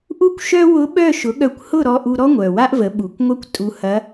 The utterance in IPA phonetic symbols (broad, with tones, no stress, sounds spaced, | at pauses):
ʔ u˥ kʷ ʃ œ˥ w ʊ˧˥ ɓ œ˥˨ ʃ ʊ˩˥ ɠ œ˧ kʷ h ʊ˥˨ ɾ ɔ˧ ʔ u˧ ɾ ɔ˥ ŋʷ œ˨˩ w a˥ ʔ v ə˩˥ ɓ u˨˩ kʷ ŋʷ ɐ˥ kʷ tʼ u˧ h ɐ˧˥